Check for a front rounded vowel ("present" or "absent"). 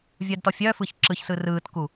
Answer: present